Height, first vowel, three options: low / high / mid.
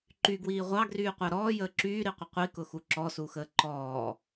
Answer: high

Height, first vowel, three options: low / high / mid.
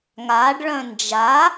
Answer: low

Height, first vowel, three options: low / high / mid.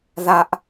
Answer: low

